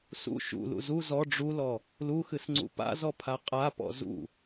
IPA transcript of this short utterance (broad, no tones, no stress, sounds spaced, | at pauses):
s ṵ ʃ ṵ l ṵ z u z ɔ ɖ͡ʐ u l ɔ | l u x ɨ s ŋ͡ǀ ṵ p a̰ z ɔ pʰ a qʼ a p ɔ̰ z ṵ